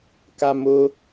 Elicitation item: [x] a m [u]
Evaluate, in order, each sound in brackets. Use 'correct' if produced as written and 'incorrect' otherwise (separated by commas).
incorrect, incorrect